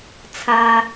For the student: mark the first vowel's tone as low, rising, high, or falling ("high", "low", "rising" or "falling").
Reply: low